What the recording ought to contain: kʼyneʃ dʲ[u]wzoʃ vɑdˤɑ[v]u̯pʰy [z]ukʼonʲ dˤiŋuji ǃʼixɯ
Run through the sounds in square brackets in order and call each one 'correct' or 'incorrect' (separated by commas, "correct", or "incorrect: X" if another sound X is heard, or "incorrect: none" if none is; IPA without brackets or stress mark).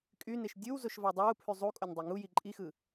incorrect: ɯ, incorrect: none, incorrect: zˤ